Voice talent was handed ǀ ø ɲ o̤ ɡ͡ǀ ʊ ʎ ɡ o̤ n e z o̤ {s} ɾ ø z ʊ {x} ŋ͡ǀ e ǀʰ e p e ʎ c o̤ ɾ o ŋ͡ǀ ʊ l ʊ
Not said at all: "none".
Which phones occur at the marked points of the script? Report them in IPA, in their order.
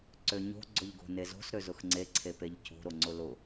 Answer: s, x

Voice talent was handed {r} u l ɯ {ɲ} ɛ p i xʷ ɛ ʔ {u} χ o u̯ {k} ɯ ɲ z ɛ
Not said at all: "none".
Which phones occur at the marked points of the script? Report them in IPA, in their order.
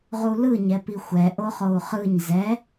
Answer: ʁ, ɲ, o, χ

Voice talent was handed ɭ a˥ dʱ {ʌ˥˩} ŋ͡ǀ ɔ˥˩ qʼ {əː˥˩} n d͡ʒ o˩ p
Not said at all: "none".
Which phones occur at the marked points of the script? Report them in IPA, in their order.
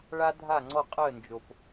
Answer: a˥˩, əː˥˩

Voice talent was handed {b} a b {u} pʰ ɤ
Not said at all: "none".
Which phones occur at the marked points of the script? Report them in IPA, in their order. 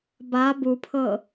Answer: b, u

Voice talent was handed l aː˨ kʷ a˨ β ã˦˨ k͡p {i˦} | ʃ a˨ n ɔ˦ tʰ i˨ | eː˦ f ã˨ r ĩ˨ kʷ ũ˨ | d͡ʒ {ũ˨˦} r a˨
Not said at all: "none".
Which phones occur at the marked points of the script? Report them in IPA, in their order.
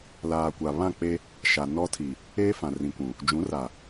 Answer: e˦, ũ˨˦

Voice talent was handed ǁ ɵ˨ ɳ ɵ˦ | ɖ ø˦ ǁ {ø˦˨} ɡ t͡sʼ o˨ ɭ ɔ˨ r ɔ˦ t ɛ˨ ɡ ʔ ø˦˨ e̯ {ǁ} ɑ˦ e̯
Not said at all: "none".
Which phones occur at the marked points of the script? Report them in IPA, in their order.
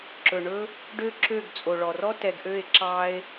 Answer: ø˦˨, ǁ

